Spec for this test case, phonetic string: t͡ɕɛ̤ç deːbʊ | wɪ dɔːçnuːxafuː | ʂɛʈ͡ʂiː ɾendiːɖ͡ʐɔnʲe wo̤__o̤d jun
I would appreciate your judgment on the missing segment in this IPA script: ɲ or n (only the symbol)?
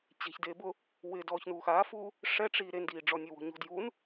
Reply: ɲ